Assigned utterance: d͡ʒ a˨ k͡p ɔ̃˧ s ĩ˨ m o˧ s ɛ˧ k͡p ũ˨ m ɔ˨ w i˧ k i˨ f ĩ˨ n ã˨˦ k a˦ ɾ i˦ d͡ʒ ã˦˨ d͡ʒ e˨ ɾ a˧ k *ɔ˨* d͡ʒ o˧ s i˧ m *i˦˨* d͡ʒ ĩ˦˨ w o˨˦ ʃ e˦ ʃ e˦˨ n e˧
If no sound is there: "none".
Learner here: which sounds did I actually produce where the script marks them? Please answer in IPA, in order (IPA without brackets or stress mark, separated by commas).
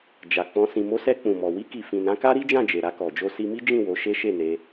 ɔ˨, i˦